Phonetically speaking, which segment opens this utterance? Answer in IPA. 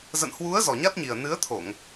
z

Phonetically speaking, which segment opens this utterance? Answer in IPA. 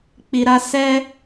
k͡p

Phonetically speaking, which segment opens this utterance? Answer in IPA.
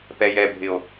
p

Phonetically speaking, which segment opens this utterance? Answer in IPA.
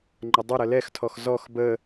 ŋ͡ǃ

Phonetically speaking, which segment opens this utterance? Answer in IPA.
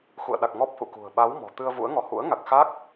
x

